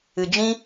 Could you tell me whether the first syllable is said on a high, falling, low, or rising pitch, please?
low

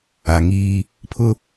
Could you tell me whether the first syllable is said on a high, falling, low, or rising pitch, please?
low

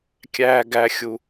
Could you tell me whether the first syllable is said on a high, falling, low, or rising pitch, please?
high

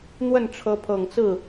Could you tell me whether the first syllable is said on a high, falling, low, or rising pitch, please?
falling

